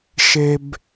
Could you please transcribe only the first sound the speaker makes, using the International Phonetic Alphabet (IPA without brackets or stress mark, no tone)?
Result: ʃ